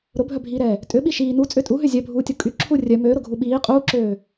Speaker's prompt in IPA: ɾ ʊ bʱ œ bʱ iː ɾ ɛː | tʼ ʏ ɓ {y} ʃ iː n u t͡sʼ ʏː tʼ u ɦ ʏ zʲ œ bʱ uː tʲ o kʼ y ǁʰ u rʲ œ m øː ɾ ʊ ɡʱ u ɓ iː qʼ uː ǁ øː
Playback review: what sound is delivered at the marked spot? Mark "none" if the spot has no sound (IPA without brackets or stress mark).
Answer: i